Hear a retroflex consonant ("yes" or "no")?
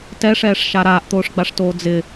yes